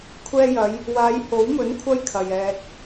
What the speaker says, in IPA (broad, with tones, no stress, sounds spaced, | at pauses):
kʷʰ ɛː˧ j ɐ˨˧ j | w aː˨˧ j h o˨˥ w m ɵ˨˥ n kʷʰ ɐ˥ j kʰ ɐ˨ j ɛː˨ k̚